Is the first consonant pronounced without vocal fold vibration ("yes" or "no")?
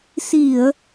yes